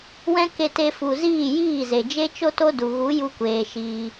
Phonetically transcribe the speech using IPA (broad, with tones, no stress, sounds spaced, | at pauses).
w ɛ̃˦ k e˧ t e˧ f u˨ z iː˦˨ j iː˦˨ z e˨ d͡ʒ e˦ t͡ʃ o˦ t o˦ d u˨ ɣ u˨˦ j u˧ kʷ eː˨ ʃ iː˧